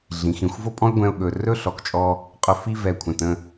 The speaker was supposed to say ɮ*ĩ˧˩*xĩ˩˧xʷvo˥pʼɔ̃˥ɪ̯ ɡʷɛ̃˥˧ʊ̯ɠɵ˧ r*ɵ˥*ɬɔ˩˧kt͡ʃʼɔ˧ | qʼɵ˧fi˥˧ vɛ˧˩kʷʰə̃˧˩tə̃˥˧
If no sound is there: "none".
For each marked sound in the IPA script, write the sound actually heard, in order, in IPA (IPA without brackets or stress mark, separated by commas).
ĩ˩˧, ɵ˥˧